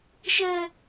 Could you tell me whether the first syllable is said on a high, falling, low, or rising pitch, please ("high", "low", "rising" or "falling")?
high